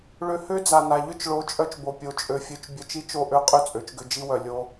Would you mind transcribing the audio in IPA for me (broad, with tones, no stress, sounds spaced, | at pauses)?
ɭ ø˧ h ø˦ d͡z a˨ n a˨ ʎ ʏ˦ t͡ʃ ɭ o˨˦ t͡ʃʼ œ˧ t͡ʃ b o˨ pʲ o˨ t͡ʃʼ ø˨ fʲ ø˧ t͡ʃ bʲ œ˧ t͡ʃ i˦ t͡ʃ o˦˨ ʔ ø˦ qʼ ʏ˦˨ t͡sʼ ø˨˦ t͡ʃ ɡ ʏ˧ d͡ʒ i˦ w œ˨ lʲ o˧